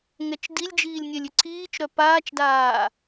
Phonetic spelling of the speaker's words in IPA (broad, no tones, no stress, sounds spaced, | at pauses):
ŋ ɛ t͡ʃ d i lʲ d͡ʒ iː lʲ nʲ ɛ lʲ ʏ ǀʰ iː t͡ʃ ɾ œ p aː t͡ʃ d aː